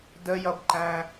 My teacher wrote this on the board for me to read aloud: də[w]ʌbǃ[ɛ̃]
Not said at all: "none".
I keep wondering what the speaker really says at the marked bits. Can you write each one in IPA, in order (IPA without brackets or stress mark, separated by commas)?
j, æ̃